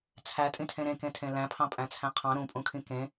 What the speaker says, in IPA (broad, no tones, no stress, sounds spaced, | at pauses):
t͡sʰ æ tʼ ĩ tʰ ẽ ɾ ẽ k ẽ tʰ ẽ l æ̃ pʰ ɑ̃ pʼ æ̃ t͡sʰ æ̃ qʰ ɑ̃ ɾ ũ pʼ ũ kʰ ĩ k ẽ